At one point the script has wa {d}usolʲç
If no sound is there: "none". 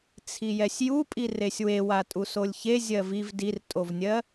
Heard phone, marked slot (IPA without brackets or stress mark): tʼ